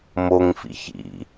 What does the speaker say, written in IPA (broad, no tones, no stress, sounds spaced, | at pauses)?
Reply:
m o ŋ f ḭ ç ḭ